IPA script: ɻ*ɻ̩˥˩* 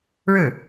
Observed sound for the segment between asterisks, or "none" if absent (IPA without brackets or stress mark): ɻ̩˥˩